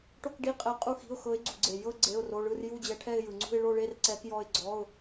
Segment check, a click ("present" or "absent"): present